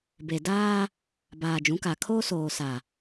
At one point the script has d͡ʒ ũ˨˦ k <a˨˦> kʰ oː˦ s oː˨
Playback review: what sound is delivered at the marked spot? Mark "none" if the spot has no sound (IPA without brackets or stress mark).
a˨